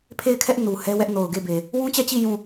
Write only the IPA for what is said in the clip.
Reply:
pʰ e˦˨ ɪ̯ kʰ ɛ˦ ʔ n u˨ h ɛ˦ w ɛ˦ ʔ n o˨ ʊ̯ ɡ e˦˨ b e˨ | w ũ˦ t͡ɕ ɛ˦˨ t͡ɕ i˦˨ j ũ˦˨

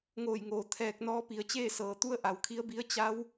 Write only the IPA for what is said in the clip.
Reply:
ŋ oː˧˩ j ŋ oː˩ t̪ʰ ɛː˧ k̚ n ɔː˧˥ p i˩˧ ə̯ t͡ɕ eː˥˨ s ɤː˩ t̪ u˧˥ ə̯ ʔ a˩ w kʰ i˧˥ ə̯ b i˧˥ ə̯ t͡ɕ a˧˥ w

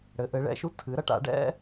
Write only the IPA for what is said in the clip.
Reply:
ɽ ɘ˩˧ ʔ ɘ˩˧ ɭ ɛ̰˩˧ ʃ u˦ tʰ ɨ˩˧ ɾ ɐ˦ ʈ a̰˩˧ ɖ ɛ̰˦

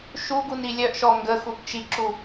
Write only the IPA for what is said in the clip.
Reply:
ʃ u ɡ u n i lʲ œ ʔ ʃ ɔ ŋ ɡ ə x u b t͡ʃ i ǁ u

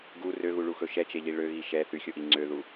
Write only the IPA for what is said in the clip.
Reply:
ɡ u r ø ɣ u ɭ u x ɵ ʃ ɛ t͡ʃ e ʎ i ɭ ø ɣ i ʃ ɛ θ y xʲ o ʔ i ŋ͡ǀ ø ð u

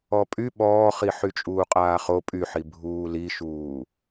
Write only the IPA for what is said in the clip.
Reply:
ɔ pʼ y ɓ ɔː χ i ħ y t͡ʃʼ uː qʼ aː χ o pʼ y ħ i bʱ uː l i ʃ uː

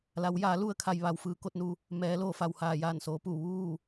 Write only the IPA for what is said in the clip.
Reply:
l a˩˧ w j aː˩˧ l u˧ ə̯ kʰ a˩ j ʋ a˩ w f ɯː˩ k o˥˨ t̚ n u˧ | m ɛː˩˧ l oː˩ f a˩ w h aː˩ j aː˧˩ n s oː˩˧ p u˧˩ ʋ uː˥˨

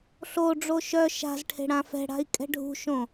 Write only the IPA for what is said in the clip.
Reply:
ɬ o ɖ͡ʐ o ʃ œ ʃ a̤ z ʈʰ e̤ ɽ ã f ɛ̤ ɽ a̤ i̯ kʼ ɛ̤ ɖʱ ṳ ʃ õ

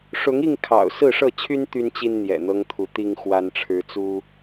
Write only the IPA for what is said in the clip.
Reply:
ʂ ʊ˨˦ ŋ i˥˨ ŋ kʰ ɑ̰˨˩ ʊ̯ s ɹ̩˥˨ ʂ ɤ˥˨ t͡ɕʰ y˦ n t̪ y˦ n t͡ɕ i˦ n n̪ j ɛ̰˨˩ n̪ ɤ˦ ŋ t̪ʰ u˨˦ t̪ i˦ ŋ x w a˦ n ʈ͡ʂʰ ɻ̩˦ t͡s u˦

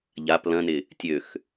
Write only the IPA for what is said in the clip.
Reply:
ʎ a p l ɐ̃ n ɪ | tʲ ø x

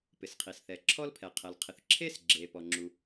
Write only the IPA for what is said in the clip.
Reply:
p ɪ˩ s qʰ i˩ s θ ɛ˩ ǁʰ ɔ˥ l pʰ ɛ˩ qʰ ɛ˩ l qʰ ɪ˩ θ ǁʰ e˥ s ɡ͡ǁ e˩ p ɔ˩ ŋ͡ǁ u˩

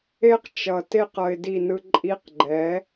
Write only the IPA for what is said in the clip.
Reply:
e˦ q t͡ʃ ʌ˨ t e˦ q ʌ˧ ɪ̯ d i˦˨ n ɯ˦ ǃʼ i˧ q ɡ͡ǃ ɛ˨˦

